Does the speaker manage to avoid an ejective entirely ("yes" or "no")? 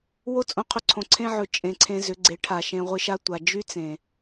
no